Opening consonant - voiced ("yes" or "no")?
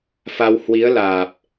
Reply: no